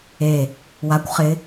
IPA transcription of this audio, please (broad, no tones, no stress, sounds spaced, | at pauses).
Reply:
e | w a kʷ χ ɪ